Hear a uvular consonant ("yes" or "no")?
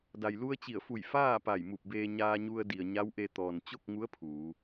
no